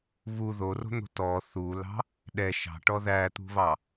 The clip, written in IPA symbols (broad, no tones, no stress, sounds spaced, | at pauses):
β u ð o r o̤ n̪ o̤ t ɔ θ u l ɑ̤ | ɗ ɛ ʃ ɑ̤ ʈ ɔ ð æ t̪ ṳ β ɑ